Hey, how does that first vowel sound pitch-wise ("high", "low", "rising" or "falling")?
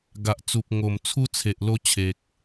low